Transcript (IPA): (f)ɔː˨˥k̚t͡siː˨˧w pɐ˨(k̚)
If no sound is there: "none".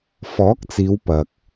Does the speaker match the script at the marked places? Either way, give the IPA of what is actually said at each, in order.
f, k̚

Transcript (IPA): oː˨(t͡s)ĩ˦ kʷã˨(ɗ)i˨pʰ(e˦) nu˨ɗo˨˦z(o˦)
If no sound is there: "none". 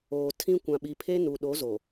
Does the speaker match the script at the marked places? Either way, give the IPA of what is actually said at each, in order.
tʰ, ɓ, e˦, o˨

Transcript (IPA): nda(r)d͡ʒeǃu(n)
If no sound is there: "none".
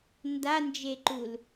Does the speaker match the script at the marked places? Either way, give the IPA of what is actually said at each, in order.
n, l

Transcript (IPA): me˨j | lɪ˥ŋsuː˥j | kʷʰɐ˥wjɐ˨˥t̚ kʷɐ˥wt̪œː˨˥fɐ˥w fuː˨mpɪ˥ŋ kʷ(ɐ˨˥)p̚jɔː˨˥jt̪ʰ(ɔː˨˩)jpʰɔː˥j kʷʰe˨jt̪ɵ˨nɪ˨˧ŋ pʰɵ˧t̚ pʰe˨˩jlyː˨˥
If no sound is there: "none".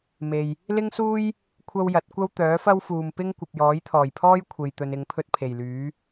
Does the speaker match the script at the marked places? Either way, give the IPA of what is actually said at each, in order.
ɐ˨, ɔː˨˩

